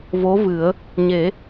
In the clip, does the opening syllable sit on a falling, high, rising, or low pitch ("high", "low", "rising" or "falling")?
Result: rising